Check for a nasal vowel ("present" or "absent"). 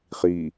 absent